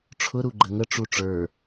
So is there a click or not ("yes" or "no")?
yes